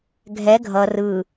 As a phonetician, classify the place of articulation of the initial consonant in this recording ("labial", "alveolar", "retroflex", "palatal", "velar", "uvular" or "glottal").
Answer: velar